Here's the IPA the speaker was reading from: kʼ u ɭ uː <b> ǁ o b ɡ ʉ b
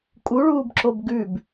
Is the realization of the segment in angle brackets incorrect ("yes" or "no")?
no